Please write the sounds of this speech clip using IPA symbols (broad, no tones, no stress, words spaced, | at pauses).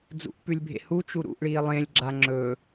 d͡zṵʔpʉlʲbʱḛ hut͡ʃu ɾṵʔɭiː lˠẽlʲɡ͡ǁa ŋ͡ǁɵ